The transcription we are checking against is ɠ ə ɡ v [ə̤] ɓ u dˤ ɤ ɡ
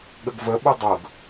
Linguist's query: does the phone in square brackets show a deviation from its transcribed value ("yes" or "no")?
yes